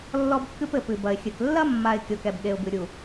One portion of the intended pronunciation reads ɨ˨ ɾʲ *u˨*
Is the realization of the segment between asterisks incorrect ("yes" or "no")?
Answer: no